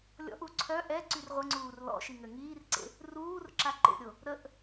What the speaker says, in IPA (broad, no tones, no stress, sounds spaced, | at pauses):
lʲ ɔ̰ ʔ u ǀʰ œ ʔ ɛ ǀ y r ʁʷ ə ŋ͡ǀ uː r l ɔ̰ ʃ i ŋ ø ŋ iː r ǀ ḛ | r uː r ǁ a ǃ ḛ ɾʲ o | ɾ ə ʔ